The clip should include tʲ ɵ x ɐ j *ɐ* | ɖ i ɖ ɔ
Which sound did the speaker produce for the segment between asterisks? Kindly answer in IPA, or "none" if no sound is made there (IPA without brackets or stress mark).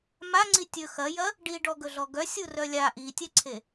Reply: ɐ